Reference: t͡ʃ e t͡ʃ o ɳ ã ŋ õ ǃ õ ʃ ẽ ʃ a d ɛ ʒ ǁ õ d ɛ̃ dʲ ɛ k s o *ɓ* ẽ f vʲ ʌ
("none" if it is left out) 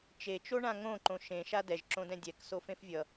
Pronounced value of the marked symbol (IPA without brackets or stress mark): f